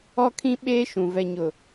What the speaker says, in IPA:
ɔ˦ kʰ ĩ˦ ɓ eː˦ ʃ ũ˨ v ɛ˨ ɲ ʊ˨

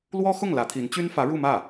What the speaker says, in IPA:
l w ɔ˥ x ʊ˥˩ ŋ l ä˧˥ t̪ʰ i˧˥ n t͡ɕ y˥ n f ä˧˥ ɻ u˥˧ m ä˥˩

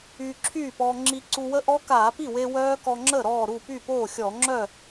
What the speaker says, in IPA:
yː˧ ǁʰ yː˥˩ p ɔː˧ ŋ͡ǁ i˧ ǀ u˧ w ə˦˥ ʔ ɔ˦˥ k aː˧˩˧ p i˥˩ w e˧ w œː˦˥ k ɔ˧ ŋ͡ǁ əː˥˩ ɾ ɔː˥˩ ɾ u˥˩ p y˥˩ p oː˥˩ xʲ ɔ˧˩˧ ŋ͡ǁ œ˥˩

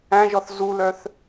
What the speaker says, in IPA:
æ̃ ʒ ɔ θ z u l œ θ

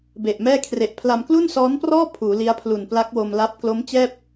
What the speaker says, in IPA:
b e˨˩ ʔ m ɛː˥˩ kʰ r e˨˩ ʔ pʰ l a˧ m k l u˥˩ n s ɔː˦˥ n p r ɔː˥˩ pʰ uː˩˦ l i˦˥ a̯ pʰ l u˨˩ n p l a˦˥ k̚ w o˧ m l a˦˥ p̚ k l o˦˥ m t͡ɕ ɛː˥˩ p̚

